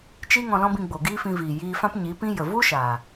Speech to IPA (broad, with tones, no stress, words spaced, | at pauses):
t͡ʃi˦ ŋɔ̃˧lɔ̃˦bĩ˧ ɡ͡bo˨ɡiː˦fĩ˧viː˨ jiː˧fã˦p ɲi˨˦pĩ˦ jə˨ vu˦ ʃaː˨